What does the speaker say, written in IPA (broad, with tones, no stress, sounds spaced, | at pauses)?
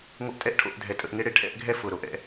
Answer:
ŋʷ ə˧ ʔ tʼ ɛ˦ ʔ ʈʰ o̰˦˨ ʔ dʱ ɛ˨ tʼ ə̰˦˨ ʔ ŋ e˦ ɽ e˦ ʈʰ ɛ̰˦ ʔ ɡʱ ɛ˦ f ʊ˨ ɾ o˧ ʔ ɛ̰˧